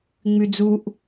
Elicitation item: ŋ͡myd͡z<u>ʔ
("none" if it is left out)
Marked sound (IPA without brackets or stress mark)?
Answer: u